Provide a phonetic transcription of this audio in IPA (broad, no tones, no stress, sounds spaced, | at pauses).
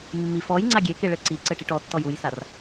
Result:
mː i f ɔ j ŋ͡ǀ a ɡʲ e k e ɭ ɘ ǀ i ǀ ɘ ʈ i ʈ ɔ tː ɔ j u j s a r